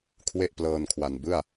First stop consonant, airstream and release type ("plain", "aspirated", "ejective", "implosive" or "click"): aspirated